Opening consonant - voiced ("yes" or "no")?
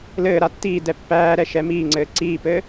yes